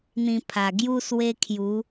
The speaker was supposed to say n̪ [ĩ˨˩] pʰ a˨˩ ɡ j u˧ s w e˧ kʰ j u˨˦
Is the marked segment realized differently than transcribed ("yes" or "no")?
yes